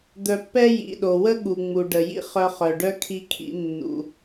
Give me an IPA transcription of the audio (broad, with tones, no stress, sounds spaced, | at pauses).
d̪ œ˧ pː ɛ˥ j ḭ˩ ɗ o˩ w ə˥ ɠ u˩ ŋ͡m u˩ ɖ ə˩ j ḭ˥ χ œ˧ χ œ˩ ɖ œ˥ kʰ i˧ kʰ ḭ˧ nː ṵ˩